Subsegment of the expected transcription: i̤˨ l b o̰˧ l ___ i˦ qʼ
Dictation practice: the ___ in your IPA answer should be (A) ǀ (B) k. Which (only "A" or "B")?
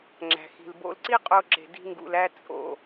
A